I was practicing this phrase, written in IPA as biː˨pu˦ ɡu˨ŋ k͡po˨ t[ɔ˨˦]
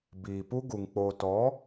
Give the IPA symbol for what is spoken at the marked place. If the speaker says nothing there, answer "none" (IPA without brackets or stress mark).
ɔ˨˦